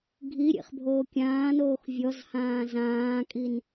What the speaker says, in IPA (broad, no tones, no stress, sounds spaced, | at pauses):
ɡʱ i ɾʲ ḛ χ bʱ oː kʲ ãː n oː x vʲ ɔ z h ãː z ãː kʼ i n